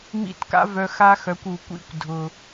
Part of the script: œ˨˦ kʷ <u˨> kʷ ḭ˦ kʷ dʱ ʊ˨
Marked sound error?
no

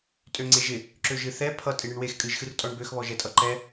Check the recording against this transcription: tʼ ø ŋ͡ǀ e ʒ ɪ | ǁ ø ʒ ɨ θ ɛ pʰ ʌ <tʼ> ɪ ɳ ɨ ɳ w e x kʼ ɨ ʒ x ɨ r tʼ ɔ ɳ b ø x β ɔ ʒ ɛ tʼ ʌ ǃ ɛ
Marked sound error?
no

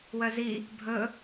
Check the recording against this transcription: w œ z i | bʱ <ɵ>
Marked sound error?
no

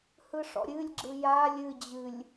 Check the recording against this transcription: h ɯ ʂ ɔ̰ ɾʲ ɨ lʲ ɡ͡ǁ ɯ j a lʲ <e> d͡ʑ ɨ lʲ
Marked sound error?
yes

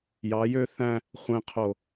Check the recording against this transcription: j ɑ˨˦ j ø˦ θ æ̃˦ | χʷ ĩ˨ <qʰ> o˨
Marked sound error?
no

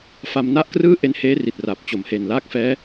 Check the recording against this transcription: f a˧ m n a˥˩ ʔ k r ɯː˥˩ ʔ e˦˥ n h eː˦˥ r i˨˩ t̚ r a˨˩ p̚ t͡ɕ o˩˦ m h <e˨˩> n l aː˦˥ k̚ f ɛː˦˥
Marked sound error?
no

